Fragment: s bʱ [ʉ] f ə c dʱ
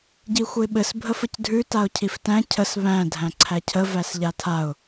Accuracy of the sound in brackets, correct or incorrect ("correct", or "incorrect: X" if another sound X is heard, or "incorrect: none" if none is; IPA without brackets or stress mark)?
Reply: incorrect: ə